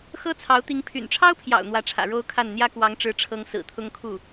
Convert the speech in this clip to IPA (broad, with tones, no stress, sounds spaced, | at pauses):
x ɤ˥ t͡sʰ ɑ˧˥ ʊ̯ t̪ i˧˥ ŋ pʰ y̰˨˩ n ʈ͡ʂʰ ɑ˥ ʊ̯ pʰ j ɑ̰˨˩ ʊ̯ n̪ w ä˧˥ ʈ͡ʂʰ ä̰˨˩ ɻ o˥ ʊ̯ kʰ a˥˩ n n̪ j ä˥ k w ɑ˧˥ ŋ ʈ͡ʂ ɻ̩˧˥ ʈ͡ʂʰ ɤ˧˥ ŋ s ɹ̩˨˩ t̪ʰ ʊ˥ ŋ kʰ u˥˩